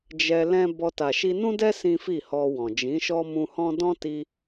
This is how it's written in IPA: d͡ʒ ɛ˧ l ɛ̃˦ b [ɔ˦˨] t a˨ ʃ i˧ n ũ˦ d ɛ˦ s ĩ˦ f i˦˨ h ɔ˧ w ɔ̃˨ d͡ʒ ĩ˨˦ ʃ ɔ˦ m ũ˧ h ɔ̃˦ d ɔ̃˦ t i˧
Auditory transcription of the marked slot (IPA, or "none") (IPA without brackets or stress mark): ɔ˧